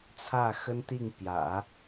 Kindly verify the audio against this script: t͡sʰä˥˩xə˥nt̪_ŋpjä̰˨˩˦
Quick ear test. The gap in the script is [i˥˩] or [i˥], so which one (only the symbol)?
i˥˩